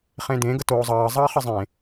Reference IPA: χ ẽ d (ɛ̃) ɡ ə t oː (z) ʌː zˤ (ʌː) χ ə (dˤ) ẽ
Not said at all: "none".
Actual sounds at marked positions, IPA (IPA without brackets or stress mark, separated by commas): ẽ, zˤ, ʌː, zˤ